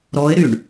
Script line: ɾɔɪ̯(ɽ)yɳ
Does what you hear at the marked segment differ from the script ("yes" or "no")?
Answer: yes